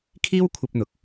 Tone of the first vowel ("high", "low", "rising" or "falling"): high